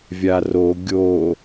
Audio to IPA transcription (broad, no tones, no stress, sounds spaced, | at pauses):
vʲ a r o ɡʲ o